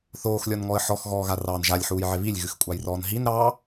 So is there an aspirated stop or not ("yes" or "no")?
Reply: no